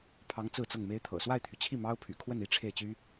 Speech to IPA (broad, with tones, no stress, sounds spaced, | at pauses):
pʰ ɑ˧˥ ŋ t͡s ɹ̩˥˧ t͡s ɤ˥˩ ŋ m e˥ ɪ̯ t̪ʰ ɤ̰˨˩ s w a˥˩ ɪ̯ t̪ʰ y˩ t͡ɕʰ i˥˩ m ɑ˥ ʊ̯ pʰ y̰˨˩ kʰ w ə˥˩ n i˥ ʈ͡ʂʰ e˥˩ ɪ̯ t͡ɕ y˥